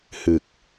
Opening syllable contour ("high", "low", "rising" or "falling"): low